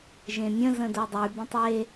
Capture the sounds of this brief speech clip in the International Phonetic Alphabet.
ʒ ẽ mʲ ə̃ z ə̃ d o dˤ y b ə̃ tˤ e

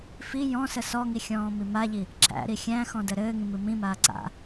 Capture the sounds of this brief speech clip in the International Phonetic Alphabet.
f i j ɔ̃ s ə s ɔ ŋ i xʲ ɔ̃ː m i m a ʎ i | ǁ æ̰ ɾ i xʲ æ̃ x ɔ̃ d ə ɾ ɘː ŋ ĩ m ɨ m ĩ m aː ǀ a̰

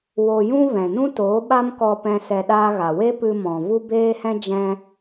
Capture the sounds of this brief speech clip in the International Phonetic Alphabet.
w o˧ j ũ˦ v ɛ̃˨ n ũ˦ t oː˨˦ ɓ a˦ m k ɔ˧ p ɛ̃˦ s ɛ˧ ɗ aː˦ ɣ a˨ w e˦ p ɨ˧ m ɔ̃˨ v u˦ b eː˦ h ɛ̃˦ d͡ʒ ɛ̃˧

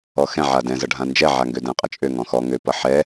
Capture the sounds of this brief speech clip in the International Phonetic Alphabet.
ɔ x ɛ̃ ʕ a d ɛ̃ z ʌ ɖʱ ã n d͡ʒ ɛ ʕ a ŋ ɡ ø d ɛ̃ qʼ ʌ t͡ʃʼ ø ŋ ɔ̃ x ɔ ŋ ø p ʌ ħ ɛ

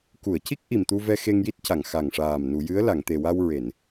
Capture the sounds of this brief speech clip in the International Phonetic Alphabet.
k u˨˩˨ ə̯ c i˦˥ k̚ ʔ i˨˩ m t̪ u˧ v ɛ˧ x e˧ ŋ j i˦˥ t̚ c a˨˩˨ ŋ x a˨˩ ŋ ʂ aː˨˩ m n u˨˩˨ j ɨ˧˥ ə̯ l a˨˩˨ ŋ t̪ e˨˩ w a˧ w ɹ e˨˩˨ n

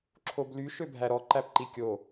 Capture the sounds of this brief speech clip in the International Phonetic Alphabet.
ǁʰ o b l y ʃ ø bʱ æ ɾ ɔ ǃ æ p ǃ i kʲ o

